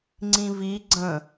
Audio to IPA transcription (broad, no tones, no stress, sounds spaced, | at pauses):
ŋ͡ǀ ĩ v i ɡ͡ǀ ə̃